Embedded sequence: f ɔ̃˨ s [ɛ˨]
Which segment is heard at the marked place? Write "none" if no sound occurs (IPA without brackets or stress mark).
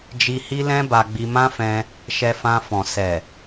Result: ɛ˨